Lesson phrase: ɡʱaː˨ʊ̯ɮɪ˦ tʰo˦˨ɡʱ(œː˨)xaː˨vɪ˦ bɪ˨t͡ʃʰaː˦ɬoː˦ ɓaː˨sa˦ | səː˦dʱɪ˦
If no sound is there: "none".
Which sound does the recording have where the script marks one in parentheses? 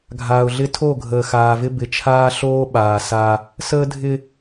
əː˨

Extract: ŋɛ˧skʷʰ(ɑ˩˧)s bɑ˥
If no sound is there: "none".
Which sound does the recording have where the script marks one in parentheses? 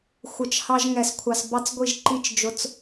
ɑ˧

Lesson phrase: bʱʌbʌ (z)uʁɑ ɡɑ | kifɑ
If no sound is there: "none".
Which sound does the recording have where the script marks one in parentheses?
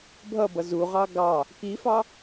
z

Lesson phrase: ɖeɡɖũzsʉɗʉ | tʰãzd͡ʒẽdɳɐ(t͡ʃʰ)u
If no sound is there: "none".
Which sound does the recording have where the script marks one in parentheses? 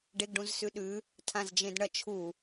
t͡ʃʰ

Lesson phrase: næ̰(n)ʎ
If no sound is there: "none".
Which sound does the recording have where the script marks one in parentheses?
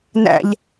none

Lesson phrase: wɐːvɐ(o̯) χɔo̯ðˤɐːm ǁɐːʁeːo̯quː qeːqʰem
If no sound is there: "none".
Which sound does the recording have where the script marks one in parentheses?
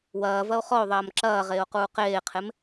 o̯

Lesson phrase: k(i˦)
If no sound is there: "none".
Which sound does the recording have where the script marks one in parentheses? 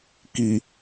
i˨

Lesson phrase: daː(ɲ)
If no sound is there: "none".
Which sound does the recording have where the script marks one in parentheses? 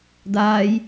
j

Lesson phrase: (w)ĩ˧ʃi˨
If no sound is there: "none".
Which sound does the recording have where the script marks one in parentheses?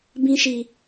b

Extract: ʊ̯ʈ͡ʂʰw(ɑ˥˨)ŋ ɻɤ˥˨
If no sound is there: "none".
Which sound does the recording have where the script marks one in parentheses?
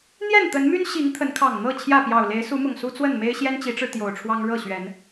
ɑ˦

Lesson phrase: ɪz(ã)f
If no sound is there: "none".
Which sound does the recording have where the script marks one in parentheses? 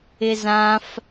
ã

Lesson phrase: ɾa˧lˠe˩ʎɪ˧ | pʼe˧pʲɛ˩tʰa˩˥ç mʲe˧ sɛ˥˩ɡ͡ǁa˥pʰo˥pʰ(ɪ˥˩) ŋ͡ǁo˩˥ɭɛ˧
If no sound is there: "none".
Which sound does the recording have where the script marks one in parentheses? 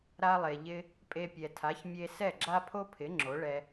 ɪ˩˥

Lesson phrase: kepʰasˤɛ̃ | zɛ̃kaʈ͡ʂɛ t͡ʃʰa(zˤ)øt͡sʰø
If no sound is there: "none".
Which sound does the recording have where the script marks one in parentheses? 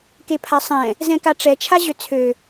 ʑ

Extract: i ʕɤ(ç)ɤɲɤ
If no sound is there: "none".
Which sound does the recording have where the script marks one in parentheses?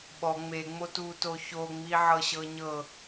ɕ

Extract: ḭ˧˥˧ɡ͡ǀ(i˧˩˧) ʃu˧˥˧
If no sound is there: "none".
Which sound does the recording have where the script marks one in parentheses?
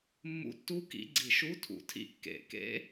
i˧˩˧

